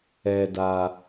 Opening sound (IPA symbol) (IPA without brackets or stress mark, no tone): ɛ